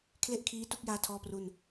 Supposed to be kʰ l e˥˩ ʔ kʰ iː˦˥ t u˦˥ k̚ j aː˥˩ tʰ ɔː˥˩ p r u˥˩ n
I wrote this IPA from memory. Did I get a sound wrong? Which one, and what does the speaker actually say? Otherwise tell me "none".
none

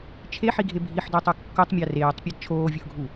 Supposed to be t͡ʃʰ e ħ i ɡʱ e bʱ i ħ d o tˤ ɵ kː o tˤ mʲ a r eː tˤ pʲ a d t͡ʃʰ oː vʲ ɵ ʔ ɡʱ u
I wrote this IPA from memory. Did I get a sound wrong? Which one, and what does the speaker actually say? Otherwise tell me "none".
none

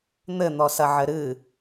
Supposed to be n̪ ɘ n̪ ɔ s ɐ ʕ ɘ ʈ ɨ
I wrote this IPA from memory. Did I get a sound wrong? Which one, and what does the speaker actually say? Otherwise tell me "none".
ʈ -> ɾ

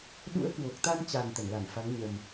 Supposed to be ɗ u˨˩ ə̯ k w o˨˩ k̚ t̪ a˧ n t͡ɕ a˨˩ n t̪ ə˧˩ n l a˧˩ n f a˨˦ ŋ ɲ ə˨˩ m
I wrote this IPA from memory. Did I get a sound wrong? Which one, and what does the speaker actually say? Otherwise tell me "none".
u˨˩ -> ṵ˧˥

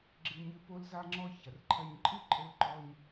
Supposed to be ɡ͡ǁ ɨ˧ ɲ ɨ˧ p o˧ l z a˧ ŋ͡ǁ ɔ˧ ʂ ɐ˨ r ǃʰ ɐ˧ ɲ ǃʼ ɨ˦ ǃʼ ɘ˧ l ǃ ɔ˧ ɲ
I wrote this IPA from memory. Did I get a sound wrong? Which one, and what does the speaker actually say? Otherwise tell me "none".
ʂ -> ç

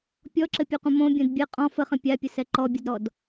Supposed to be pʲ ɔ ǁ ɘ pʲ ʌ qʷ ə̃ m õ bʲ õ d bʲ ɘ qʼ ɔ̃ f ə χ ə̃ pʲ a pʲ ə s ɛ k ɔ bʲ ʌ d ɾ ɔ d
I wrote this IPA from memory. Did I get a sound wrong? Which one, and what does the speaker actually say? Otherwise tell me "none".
k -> ǃ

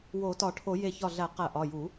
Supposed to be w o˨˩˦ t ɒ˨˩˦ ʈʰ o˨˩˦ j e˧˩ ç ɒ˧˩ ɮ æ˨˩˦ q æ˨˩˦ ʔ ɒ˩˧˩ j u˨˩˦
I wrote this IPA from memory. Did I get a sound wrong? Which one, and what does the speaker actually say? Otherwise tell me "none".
none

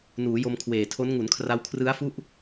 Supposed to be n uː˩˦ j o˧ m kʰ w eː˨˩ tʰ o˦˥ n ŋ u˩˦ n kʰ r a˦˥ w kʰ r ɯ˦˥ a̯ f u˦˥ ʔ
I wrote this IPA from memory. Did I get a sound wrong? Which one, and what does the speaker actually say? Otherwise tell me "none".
none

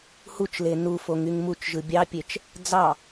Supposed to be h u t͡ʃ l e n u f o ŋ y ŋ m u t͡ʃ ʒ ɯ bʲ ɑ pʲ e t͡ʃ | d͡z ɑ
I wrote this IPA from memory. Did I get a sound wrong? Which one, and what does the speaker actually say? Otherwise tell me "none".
none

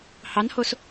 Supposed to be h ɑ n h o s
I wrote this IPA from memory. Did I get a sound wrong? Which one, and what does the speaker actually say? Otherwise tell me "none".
none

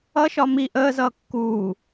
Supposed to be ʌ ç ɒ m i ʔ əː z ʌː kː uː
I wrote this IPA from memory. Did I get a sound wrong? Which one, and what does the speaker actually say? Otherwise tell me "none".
ç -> ʃ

